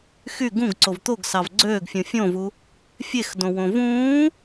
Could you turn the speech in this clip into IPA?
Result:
x y ɡ ũ ɡ ǀ o v t̪ o ɡ s ɑ v ɡ͡ǀ øː ɡ fʲ ũ fʲ õ v u | fʲ e x d õ w õ v ũː

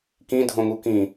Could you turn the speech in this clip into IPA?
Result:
k ĩ dʱ õ ŋ u k ĩ

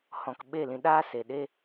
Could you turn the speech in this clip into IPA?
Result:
h ɔ̃˨ k ɓ e˦˨ l ĩ˧ ɗ aː˦ s e˨ ɗ e˦

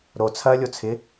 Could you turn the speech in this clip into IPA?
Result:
ɾ o t͡sʰ ɐː lʲ o t͡sʰ ɪ

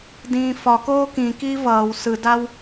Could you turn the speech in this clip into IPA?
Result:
d ĩː f ɒ k oː k ĩ k iː v ʌː w s ɯ d a w

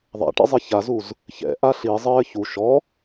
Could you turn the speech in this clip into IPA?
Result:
ðˤ a̰ ʈ ɛ̰ zˤ i ç a z u z | ç ɛ̰ ʔ a ɬ i zˤ ɘː ç u ʃ ɔ

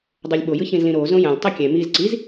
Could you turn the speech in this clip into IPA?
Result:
dˤ o lʲ ɓ o j ɯ ç ĩ z l ĩ ɾ o z õ j ã lʲ tˤ i kʲ ɛ̃ m i z ǀ i z

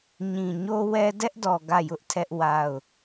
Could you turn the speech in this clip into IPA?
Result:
ɲ ĩ˨ ɲ o˦ w ɛ˦ d ɛ˦ ʔ d ɔ˨ ɡ ä˦˨ j ʊ˦ ʔ tʰ ɛ˦ ʔ w a˦˨ ʊ̯

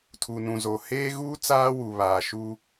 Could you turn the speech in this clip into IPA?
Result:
tʰ u˨ n ũ˨ z oː˨ h eː˦ ɣ uː˦ t͡s aː˦ w u˨ β aː˨ ʃ u˦

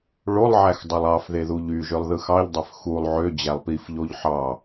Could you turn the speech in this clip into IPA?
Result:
ɭ o lˠ ʕ æ x dˤ ɯ lˠ ɑ f ð e ð u ʎ y ʒ ø lˠ ð ɯ x ɑ ʎ dˤ ø f x u lˠ ʕ ø d͡ʑ æ lˠ p i f ʎ o ʎ ħ ɑ

